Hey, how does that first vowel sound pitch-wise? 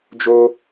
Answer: high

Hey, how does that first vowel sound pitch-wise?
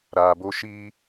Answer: low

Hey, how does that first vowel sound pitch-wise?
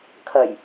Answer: low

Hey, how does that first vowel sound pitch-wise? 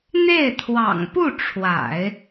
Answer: falling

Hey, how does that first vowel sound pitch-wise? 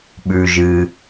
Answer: high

